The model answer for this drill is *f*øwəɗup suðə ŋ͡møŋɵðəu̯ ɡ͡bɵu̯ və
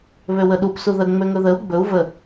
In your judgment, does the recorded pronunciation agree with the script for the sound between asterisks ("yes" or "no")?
no